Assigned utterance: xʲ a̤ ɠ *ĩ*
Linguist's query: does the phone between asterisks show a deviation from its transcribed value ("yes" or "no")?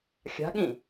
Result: no